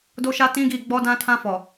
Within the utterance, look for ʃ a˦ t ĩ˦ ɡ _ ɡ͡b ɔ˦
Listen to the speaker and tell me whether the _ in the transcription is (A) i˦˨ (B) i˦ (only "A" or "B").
A